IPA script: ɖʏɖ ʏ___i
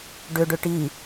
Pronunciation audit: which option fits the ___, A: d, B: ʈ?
B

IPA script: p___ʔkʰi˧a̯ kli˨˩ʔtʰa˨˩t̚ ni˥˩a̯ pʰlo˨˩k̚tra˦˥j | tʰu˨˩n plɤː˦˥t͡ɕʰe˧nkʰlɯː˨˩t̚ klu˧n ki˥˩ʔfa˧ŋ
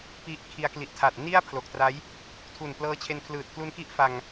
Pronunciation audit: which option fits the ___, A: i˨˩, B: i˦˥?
B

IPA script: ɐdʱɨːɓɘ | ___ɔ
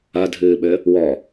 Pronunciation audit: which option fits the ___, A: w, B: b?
A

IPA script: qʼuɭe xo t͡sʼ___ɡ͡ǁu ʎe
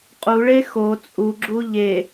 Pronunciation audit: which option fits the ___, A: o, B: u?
B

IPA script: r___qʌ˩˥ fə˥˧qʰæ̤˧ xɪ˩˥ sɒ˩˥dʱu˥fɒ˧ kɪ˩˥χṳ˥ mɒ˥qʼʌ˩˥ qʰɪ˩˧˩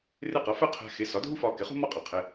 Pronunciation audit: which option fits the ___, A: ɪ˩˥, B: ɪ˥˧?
B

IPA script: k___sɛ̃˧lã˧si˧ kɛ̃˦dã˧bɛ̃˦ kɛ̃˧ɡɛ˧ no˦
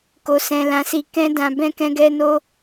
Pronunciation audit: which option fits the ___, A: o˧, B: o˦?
A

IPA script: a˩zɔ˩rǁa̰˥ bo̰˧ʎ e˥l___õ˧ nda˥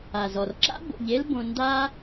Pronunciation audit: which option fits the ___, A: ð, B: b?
B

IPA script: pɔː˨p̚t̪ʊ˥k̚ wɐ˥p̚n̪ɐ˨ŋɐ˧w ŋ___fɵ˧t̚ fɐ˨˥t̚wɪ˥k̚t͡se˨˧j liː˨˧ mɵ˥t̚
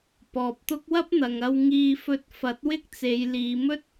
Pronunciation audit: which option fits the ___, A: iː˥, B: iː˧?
B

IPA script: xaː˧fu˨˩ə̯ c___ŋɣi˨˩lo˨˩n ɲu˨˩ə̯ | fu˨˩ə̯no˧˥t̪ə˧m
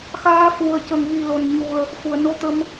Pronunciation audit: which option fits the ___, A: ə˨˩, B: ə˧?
A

